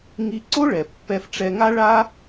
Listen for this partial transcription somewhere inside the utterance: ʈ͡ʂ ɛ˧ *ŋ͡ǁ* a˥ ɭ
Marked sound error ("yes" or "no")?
yes